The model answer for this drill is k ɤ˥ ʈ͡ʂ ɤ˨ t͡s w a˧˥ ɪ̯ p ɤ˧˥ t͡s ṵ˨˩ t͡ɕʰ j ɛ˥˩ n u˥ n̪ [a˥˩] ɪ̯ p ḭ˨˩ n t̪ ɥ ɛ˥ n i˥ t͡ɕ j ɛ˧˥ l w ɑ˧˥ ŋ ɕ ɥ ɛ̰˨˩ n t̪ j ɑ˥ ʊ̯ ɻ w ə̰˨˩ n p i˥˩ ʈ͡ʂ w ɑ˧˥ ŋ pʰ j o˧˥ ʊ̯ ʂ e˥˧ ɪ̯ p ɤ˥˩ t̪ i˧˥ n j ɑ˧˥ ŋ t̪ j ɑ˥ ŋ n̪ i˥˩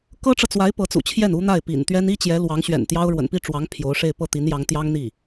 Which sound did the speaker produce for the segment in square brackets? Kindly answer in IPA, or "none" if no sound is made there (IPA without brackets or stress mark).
a˥˩